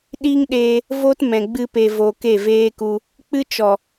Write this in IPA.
ɗ i˦ ŋ ɗ eː˧ | v o˦ t m ɛ̃˨ ɡ͡b ɨ˧ p e˨ v oː˨ k e˦˨ v eː˦ k u˧ | k͡p ɨ˦ t͡ʃ ɔ˨

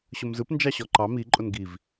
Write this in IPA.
ɕ ʊ m z ɯ p n d͡ʒ ɑ ɕ ɔ ǃ ɑ m i ǃʼ ʊ n ɡ i v

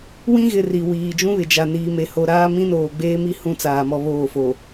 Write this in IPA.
w ĩ˦ ɣ ɪ˨ r i˨ w iː˨ d͡ʒ ũ˦ β ɪ˨ d͡ʒ a˨ n iː˨ m e˨ h o˨ ɾ aː˦ m ĩ˦ n oː˨ ɡ͡b eː˦ m i˦ h ũ˦ t͡s aː˨ m ɔ˦ β oː˦˨ f o˨

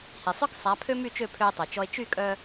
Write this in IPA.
h i˩ sˤ œ˥ k sˤ a˩˥ pʰ ø˥ m y˥˩ t͡ʃ ø˥˩ pʰ ø˧ e̯ tˤ œ˩ t͡ʃ ɔ˧ e̯ t͡ʃ y˥˩ kʼ œ˧

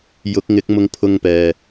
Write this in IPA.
j ʊ˨˥ k̚ ŋ ɪ˨˥ k̚ m ʊ˧ ŋ pʰ ʊ˧ ŋ p ɛː˨

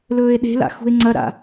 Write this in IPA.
l ɵː e̯ ɗ e̤ l a̰ x ṳ e̯ ŋ͡ǀ ɐ ɾ a̰

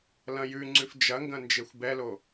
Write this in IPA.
l ɐ̃ j ʉ ŋ͡ǀ ʉ f d͡ʒ ɐ ŋ ɡ ɐ̃ n d͡ʒ e xʷ b ɛ l o

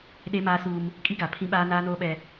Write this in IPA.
ɗ e˦ m aː˦ s uː˦ m | kʼ i˦ ɡ a˨ pʰ ĩ˦ ɓ aː˦ n aː˦ n oː˦ ɓ ɛ˦

